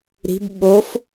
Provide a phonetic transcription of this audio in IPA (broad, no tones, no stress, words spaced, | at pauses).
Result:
ɾi̤b ɓof